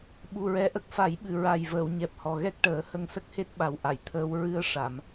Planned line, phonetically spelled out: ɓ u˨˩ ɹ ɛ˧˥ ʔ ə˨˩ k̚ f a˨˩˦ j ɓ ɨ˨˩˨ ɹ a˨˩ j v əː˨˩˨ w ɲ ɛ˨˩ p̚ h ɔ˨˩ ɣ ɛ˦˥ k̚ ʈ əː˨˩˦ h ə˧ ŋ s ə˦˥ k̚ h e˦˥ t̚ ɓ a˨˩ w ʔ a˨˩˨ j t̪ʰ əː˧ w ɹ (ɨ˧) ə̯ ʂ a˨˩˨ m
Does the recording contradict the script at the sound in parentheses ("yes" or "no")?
no